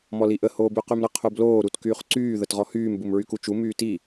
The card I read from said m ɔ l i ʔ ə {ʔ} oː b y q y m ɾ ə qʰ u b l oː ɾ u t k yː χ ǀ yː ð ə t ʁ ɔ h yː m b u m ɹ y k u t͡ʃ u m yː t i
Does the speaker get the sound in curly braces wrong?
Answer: yes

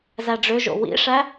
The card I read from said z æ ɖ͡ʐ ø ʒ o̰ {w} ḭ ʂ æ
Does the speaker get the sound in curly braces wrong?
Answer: no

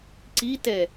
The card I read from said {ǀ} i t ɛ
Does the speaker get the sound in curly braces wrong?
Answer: no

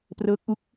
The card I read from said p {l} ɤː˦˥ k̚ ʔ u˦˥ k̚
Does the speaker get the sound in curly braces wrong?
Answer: yes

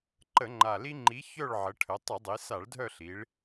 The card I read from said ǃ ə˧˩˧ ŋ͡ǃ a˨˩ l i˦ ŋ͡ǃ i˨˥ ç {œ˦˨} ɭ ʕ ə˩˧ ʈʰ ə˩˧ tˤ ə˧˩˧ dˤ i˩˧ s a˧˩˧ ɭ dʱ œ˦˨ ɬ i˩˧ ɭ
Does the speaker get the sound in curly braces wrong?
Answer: no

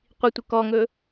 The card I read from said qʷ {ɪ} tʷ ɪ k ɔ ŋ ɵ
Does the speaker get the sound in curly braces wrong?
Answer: yes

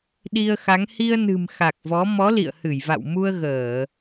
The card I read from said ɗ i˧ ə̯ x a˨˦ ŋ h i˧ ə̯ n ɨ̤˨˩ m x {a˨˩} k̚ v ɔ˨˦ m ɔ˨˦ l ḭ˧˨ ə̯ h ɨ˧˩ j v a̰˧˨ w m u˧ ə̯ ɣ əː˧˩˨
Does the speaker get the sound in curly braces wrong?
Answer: no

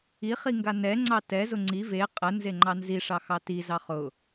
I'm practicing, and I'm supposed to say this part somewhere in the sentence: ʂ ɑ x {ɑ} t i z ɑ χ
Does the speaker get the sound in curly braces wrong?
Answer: no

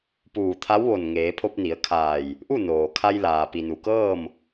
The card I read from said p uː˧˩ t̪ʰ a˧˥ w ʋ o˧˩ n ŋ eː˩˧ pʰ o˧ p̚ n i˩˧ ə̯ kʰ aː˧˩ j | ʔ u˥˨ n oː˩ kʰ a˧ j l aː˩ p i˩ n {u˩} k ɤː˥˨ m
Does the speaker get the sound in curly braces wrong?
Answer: no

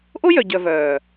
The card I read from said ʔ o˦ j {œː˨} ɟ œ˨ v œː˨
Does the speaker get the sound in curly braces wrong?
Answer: yes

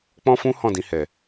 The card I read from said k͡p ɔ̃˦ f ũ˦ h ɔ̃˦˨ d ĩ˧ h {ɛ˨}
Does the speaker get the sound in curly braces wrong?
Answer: no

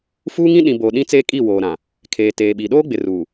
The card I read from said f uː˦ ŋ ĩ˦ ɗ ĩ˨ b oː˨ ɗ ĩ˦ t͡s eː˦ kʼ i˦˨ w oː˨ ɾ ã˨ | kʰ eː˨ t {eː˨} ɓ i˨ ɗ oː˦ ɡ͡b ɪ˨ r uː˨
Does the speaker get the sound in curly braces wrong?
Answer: no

